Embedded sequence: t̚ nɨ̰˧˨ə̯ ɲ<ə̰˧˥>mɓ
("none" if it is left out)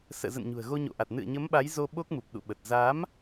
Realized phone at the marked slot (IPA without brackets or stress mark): ə˨˦